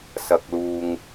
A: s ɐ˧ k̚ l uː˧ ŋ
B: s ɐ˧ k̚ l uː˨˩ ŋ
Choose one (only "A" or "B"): A